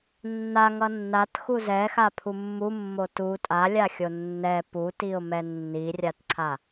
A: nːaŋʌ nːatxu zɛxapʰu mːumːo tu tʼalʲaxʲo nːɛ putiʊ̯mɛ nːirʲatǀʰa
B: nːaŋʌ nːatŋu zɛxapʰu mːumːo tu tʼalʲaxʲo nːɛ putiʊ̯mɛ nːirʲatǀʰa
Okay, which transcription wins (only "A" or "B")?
A